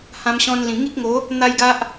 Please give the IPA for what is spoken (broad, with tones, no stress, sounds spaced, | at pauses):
h ã˧ m ɕ ɔ̃˧ n l ĩ˨˩ ŋ i˦ k̚ ŋ o˨˦ | n̪ a˦ j ɡ a˦ ʔ